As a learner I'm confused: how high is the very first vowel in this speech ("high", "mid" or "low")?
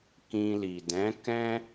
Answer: high